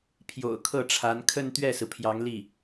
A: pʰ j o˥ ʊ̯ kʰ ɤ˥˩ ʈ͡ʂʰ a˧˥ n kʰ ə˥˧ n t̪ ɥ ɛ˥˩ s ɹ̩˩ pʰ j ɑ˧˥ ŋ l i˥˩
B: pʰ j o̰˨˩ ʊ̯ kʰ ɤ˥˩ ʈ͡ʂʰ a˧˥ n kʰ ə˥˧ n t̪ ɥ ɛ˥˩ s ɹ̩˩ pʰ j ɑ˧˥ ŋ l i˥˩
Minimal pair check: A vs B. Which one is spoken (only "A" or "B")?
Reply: B